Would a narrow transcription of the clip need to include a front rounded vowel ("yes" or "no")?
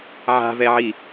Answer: no